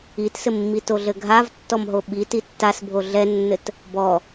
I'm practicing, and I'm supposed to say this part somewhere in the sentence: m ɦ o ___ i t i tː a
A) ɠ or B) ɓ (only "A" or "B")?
B